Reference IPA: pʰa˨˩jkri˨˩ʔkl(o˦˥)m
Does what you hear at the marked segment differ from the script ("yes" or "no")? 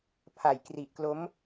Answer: no